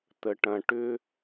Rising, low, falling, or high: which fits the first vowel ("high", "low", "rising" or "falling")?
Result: low